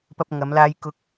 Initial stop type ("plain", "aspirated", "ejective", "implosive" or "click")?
plain